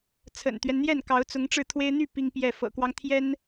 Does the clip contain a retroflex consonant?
yes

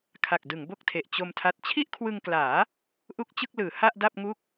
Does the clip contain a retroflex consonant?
no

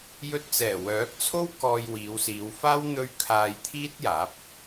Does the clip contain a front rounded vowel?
yes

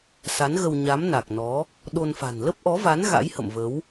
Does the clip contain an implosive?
yes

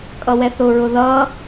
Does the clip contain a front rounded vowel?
no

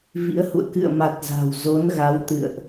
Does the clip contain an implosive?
no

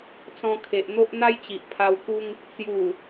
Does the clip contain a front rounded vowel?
no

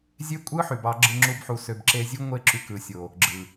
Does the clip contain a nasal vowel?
no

